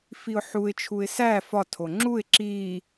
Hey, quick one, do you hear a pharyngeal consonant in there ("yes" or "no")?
yes